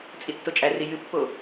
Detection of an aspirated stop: absent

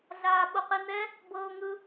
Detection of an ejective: absent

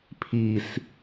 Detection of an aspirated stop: present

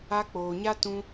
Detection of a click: absent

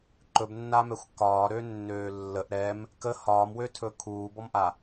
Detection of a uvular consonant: absent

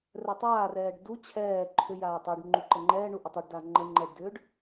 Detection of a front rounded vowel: present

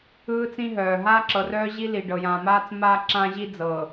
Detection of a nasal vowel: present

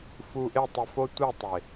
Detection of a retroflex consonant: absent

